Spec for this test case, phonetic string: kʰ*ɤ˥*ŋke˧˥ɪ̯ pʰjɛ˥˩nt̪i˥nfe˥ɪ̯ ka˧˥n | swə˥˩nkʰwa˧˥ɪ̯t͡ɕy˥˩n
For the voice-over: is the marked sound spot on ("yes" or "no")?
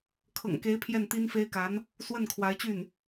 no